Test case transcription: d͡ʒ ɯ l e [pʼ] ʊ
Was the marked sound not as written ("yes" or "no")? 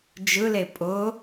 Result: no